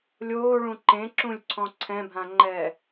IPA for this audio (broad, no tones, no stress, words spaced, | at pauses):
lʲoːɭũ ǃẽǁũlʲǀʰɔ̃ ǀʰɛ̃bʱãŋ͡ǃɛː